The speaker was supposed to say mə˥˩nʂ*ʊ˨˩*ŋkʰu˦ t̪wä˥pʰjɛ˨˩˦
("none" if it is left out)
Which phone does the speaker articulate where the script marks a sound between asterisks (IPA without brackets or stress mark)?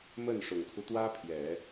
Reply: ʊ˨˩